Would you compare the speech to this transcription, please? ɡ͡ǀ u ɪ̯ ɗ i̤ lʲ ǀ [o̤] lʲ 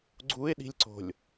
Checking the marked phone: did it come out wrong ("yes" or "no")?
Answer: no